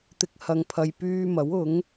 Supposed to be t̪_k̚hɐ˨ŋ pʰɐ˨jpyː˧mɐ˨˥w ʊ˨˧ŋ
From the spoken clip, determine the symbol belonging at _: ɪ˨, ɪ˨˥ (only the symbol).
ɪ˨